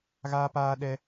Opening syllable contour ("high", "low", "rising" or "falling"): high